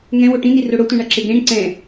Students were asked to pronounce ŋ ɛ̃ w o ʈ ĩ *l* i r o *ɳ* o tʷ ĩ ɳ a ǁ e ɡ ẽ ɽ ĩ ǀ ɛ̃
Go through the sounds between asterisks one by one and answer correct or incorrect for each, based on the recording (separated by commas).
incorrect, incorrect